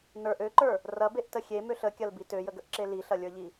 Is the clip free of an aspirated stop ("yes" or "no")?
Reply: yes